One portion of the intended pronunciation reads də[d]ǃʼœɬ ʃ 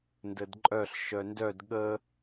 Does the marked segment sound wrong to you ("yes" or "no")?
no